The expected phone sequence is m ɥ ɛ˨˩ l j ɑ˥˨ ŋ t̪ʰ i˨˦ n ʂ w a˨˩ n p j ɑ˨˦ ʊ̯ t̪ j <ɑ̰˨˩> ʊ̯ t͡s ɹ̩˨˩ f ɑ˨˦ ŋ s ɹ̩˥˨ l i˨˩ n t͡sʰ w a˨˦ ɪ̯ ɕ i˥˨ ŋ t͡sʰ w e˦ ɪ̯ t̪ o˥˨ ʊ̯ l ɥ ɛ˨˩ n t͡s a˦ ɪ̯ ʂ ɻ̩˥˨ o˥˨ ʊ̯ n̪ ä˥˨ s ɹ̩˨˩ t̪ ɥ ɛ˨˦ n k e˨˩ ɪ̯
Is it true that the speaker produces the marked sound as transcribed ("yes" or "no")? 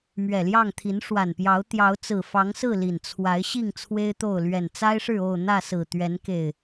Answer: no